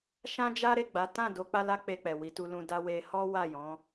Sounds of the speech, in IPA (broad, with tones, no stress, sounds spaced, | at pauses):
ʃ ã˦ d͡ʒ a˦ ɾ e˦˨ ɡ͡b a˨˦ t ã˦˨ d o˨˦ k͡p a˦ l a˦ k͡p e˧ k͡p ɛ˨ w i˨˦ t u˧ l ũ˧ d a˦ w e˧ h ɔ˦ w a˦˨ j ɔ̃˨˦